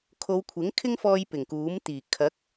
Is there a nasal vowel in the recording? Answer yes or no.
no